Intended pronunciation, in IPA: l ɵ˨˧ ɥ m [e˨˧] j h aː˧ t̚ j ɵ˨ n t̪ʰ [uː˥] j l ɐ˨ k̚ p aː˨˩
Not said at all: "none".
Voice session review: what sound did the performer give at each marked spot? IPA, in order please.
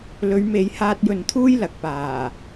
e˨˧, uː˥

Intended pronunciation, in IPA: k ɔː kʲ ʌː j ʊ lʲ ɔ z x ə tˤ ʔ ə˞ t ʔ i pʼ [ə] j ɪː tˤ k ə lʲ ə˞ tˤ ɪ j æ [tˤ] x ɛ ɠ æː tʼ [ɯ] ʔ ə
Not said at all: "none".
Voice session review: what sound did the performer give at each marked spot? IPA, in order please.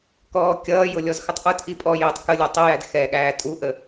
ɔ, d, u

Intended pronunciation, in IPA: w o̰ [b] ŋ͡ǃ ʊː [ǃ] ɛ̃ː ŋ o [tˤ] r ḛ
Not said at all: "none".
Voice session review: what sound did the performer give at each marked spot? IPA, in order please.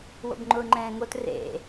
b, ŋ͡ǃ, t

